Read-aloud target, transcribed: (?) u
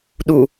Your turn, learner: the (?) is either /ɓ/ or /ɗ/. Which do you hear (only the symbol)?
ɗ